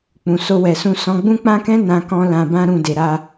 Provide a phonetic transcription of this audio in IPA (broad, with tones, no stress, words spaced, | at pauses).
k͡pũ˨so˧wɛ˨sũ˧ sɔ̃˧ɡ͡bũ˦ k͡pã˦kɛ̃˦ nã˧kɔ̃˧ lã˨bã˧ɾũ˨ de˨ɾa˧